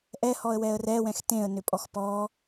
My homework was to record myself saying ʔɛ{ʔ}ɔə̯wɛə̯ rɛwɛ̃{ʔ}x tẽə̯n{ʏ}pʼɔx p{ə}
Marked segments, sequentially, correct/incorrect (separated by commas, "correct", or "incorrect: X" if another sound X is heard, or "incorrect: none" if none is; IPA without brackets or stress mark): incorrect: h, incorrect: none, correct, incorrect: ɔ